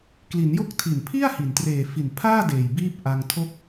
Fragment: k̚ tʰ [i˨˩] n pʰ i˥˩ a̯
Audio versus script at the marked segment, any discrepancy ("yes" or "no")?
no